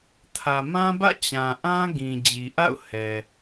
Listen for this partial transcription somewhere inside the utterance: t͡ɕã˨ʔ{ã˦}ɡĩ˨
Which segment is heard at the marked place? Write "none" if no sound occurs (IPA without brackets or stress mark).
ã˦